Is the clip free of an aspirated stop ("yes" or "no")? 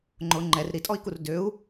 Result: yes